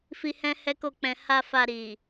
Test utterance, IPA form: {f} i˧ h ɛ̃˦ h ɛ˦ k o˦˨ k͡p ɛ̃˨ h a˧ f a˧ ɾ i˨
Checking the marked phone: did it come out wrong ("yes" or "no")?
no